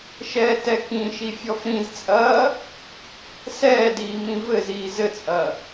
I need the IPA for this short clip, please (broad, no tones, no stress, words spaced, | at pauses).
ʃɛːtɛkĩʃi fʲɔfɾĩzt͡sʼɐː | sɛːdiː mĩvɘziː zɘt͡sʼɐ